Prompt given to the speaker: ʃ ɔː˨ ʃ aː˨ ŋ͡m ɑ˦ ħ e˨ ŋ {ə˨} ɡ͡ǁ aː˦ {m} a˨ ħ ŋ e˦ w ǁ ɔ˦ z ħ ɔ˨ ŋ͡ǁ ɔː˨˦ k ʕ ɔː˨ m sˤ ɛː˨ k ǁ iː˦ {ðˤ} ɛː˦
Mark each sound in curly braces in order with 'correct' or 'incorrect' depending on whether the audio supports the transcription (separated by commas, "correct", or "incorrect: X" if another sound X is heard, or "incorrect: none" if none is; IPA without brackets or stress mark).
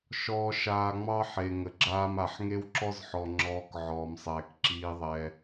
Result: correct, correct, correct